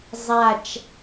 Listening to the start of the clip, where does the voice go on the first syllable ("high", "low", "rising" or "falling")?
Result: low